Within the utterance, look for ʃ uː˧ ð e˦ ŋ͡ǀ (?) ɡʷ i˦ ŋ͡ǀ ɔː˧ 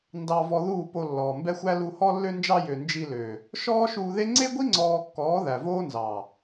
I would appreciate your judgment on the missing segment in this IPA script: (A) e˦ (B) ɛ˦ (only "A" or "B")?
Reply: A